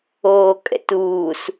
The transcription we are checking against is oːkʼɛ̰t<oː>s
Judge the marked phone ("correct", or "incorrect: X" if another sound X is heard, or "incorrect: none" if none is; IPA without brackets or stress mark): incorrect: uː